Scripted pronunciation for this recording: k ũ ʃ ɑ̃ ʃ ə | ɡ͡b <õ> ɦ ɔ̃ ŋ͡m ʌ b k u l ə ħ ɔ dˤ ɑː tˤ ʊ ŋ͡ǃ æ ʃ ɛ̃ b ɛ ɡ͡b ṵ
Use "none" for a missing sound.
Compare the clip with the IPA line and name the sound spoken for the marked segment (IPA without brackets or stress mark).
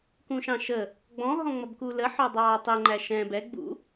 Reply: ɔ̃